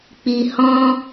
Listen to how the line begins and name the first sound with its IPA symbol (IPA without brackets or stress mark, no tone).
k͡p